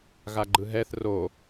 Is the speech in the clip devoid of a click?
no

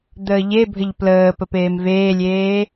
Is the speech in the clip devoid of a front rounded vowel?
yes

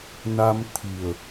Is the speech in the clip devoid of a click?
yes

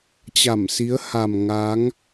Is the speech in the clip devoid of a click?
yes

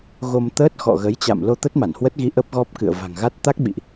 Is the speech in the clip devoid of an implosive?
no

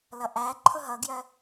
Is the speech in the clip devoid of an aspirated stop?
no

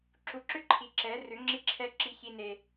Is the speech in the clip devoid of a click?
no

